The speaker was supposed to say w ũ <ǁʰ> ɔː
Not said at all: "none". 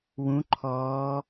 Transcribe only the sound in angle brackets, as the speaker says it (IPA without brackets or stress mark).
ǃʰ